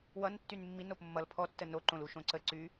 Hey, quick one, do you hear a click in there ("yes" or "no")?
yes